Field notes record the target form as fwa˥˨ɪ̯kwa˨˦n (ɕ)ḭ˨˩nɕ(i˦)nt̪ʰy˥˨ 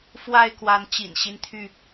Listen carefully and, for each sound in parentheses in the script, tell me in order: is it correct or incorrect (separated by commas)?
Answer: incorrect, correct